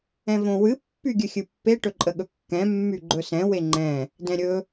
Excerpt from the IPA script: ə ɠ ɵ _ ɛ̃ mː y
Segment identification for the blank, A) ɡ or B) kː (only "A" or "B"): B